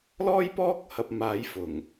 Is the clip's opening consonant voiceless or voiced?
voiced